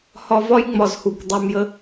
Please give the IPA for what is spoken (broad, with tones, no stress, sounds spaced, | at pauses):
h ɒ˧ v ɒ˦ j ŋ͡m ɒ˨ z h u˨ kʷ dˤ u˨ m j ə˦